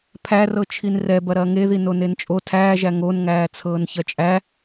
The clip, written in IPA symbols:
pʰærɤ t͡ʃʰinrɛbɐ ɾɐːŋeði nonent͡ʃʼo tʰæːʒæ ŋonŋæː t͡sʰɤːnçɐt͡ʃʼæ

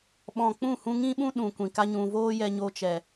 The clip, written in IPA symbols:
ɓɔ̃˨k͡pũ˦˨ hũ˧ŋĩ˦ɓũ˦ ɗũ˨ kʷĩ˨ka˦ɲũ˧ voː˦jɛ˧ɲo˧t͡ʃɛ˨

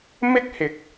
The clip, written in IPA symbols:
mɪ˥k̚hɪ˨k̚

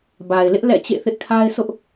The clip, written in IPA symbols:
ba˨ɪ̯lɪ˦ʔ lɛ̰˦˨t͡ɕḛ˦˨θɪ˦ʔkʰa˦ɪ̯ sʊ˦ʔ

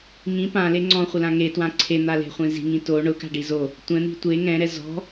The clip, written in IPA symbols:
ŋĩ pãle ŋ͡ǀɔ̃χʷɪlã ŋetwã ǀʰen̪ale̤χʷẽ zi̤ŋĩ to ɳʊka̤ɖi zo | tʷɛ̃n̪i̤ tʷe ŋɛ̃ɾɛ zɔ̤

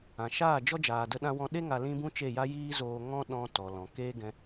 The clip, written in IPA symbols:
ã˨ʃaː˦˨d͡ʒɔ˦ d͡ʒaː˧də˦ɗã˦wɔ̃˦ ɗe˦ŋa˧ lĩ˦bũ˦ t͡ʃe˦˨ja˦ jiː˦zoː˧ŋɔ̃˦ ɗɔ̃˧ tɔ˨ lɔ̃˨keː˦ ɡɛ̃˧

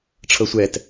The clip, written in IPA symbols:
ʈ͡ʂʰɤsʷɛt

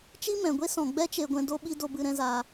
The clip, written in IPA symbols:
t͡ʃi˦mɛ̃˨ɡʷe˦sɔ̃˨ ɡ͡bɛ˦t͡ʃe˧ɡʷɛ̃˧ do˧ɓi˧ do˧bɨ˧ ɾɛ̃˧zaː˧

